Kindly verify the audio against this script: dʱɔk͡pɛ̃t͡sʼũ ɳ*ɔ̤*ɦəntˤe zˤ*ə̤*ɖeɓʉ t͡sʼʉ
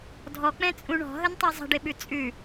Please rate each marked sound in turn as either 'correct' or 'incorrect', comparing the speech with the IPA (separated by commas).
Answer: correct, correct